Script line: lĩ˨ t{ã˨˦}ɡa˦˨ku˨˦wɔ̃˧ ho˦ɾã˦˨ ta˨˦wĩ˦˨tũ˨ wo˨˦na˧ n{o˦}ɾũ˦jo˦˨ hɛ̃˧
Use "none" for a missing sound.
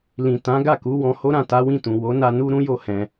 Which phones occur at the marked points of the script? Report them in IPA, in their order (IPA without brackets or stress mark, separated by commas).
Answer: ã˨˦, u˦